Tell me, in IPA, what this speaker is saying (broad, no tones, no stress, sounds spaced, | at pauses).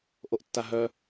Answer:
ʔ o ʔ tː a ɦ œ